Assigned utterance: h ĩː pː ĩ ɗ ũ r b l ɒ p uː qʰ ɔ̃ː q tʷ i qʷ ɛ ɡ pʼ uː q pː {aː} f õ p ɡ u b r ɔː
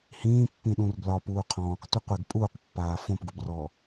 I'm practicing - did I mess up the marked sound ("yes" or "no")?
no